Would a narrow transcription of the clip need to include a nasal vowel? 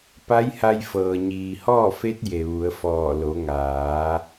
no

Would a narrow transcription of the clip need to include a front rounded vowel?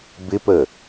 no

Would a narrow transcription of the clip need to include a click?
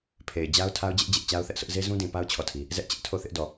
no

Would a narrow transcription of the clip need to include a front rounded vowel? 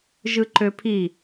yes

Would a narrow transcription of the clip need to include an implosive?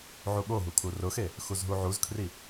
yes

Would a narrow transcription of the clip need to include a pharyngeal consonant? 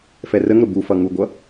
no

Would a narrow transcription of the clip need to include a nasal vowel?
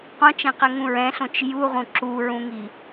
yes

